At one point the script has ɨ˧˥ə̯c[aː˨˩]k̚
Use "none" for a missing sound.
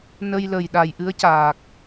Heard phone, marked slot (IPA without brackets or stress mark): aː˨˩